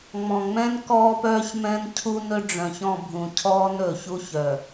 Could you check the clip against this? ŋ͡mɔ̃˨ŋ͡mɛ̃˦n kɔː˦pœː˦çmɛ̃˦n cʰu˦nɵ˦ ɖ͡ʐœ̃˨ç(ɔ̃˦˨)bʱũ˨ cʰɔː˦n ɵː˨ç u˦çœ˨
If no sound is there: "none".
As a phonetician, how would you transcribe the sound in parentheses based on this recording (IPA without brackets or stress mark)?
ɔ̃˦˨